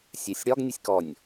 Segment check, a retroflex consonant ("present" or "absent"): present